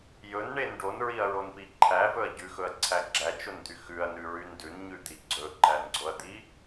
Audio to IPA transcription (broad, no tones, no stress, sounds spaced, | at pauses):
j ɵ n ɳ e n ɖ o n ɹ i ɐ̯ ɹ o n p i ǃʰ æ v ɵ ɐ̯ ɟ ʉ x ɵ ɐ̯ ǀʰ æ ɡ͡ǁ æ t͡ʃ o n d̪ y x ʉ ɐ̯ n ʉ ɹ y n d ʉ n ɲ ʉ d̪ i ɡ͡ǀ ɵ ǃ æ n ɡ͡ǀ o ɐ̯ d̪ i